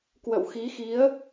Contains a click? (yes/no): no